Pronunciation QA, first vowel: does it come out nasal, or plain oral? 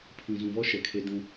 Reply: nasal